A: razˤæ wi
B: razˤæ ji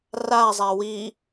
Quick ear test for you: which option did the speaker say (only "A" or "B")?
A